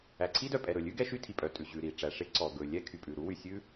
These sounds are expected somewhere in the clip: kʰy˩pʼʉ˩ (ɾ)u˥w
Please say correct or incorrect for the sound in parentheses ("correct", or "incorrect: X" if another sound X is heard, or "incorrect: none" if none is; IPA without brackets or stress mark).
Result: correct